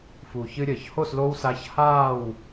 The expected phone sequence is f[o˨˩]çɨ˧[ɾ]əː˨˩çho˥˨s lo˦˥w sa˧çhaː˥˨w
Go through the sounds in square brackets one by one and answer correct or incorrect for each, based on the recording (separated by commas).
incorrect, incorrect